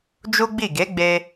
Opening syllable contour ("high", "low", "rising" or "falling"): high